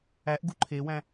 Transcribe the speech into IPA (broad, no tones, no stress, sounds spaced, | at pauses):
æ ʔ ɡ u ǃʰ e w æ̃